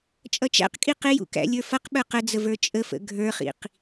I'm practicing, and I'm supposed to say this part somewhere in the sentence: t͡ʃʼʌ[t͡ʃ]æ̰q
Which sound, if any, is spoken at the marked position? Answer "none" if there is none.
t͡ʃ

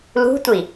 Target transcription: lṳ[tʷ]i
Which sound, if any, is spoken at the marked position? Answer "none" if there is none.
tʷ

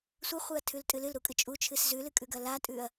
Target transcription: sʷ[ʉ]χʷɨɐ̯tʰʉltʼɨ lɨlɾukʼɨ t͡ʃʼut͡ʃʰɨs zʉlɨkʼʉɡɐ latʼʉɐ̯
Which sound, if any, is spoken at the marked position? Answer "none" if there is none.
ɨ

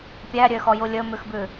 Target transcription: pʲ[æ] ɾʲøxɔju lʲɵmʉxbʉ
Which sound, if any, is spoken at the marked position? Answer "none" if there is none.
æ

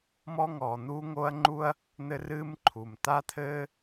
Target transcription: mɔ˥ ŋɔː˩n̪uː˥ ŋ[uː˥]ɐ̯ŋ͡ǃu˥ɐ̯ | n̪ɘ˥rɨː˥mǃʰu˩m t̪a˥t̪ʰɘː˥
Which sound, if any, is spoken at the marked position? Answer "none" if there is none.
oː˥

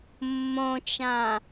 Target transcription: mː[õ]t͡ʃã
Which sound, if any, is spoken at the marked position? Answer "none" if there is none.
õ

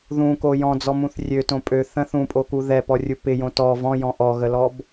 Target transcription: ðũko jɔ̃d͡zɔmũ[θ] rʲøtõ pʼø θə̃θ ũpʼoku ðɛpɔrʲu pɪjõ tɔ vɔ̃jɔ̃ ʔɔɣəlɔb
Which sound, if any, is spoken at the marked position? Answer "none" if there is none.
θ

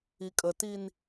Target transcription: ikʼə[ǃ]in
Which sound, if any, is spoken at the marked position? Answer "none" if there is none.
t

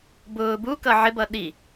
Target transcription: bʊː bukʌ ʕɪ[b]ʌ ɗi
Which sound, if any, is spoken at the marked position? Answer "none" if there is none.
b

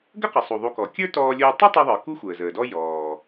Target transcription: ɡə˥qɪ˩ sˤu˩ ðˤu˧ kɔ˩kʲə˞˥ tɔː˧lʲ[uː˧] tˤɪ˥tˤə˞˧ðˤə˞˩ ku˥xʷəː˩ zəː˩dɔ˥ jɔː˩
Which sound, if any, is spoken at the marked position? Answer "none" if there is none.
uː˧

